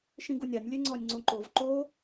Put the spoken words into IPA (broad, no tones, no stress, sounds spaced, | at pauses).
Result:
ʃ ĩ ɡ u nʲ a nʲ lʲ e ŋ͡ǀ ɔ nʲ ŋ͡ǀ õ ǃ o v ǃ o